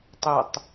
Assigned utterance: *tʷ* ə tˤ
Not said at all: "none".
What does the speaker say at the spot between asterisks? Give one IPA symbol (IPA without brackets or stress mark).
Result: tˤ